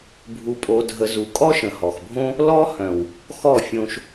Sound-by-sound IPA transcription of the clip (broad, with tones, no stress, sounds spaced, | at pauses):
bʱ u˧ pʼ o˧ dʱ ə˧ z u˨ kʼ ɔ˦ ʃ ə̃˨ h ɔ˨ x bʱ õ˦ | l ɔ˦ h œ̃˨ w | x ɔ˦˨ fʲ õ˧ ʃ